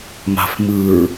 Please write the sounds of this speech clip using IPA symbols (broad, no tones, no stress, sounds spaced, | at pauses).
m a̤ f m ɯ ɹ